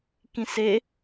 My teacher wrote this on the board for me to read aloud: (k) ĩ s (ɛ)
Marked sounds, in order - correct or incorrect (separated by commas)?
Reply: correct, incorrect